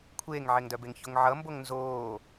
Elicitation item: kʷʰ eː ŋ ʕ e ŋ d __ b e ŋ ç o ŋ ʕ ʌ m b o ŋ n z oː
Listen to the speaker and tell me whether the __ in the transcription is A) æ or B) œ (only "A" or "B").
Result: B